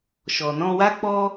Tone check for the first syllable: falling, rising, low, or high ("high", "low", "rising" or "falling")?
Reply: low